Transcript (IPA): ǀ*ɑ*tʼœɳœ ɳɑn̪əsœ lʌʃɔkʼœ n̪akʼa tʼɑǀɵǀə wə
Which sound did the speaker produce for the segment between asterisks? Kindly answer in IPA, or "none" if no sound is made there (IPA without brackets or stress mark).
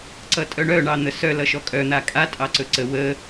ʌ